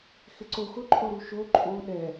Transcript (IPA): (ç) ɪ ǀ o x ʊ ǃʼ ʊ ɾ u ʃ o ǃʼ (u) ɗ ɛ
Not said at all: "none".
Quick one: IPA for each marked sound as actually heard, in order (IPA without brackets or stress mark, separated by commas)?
x, o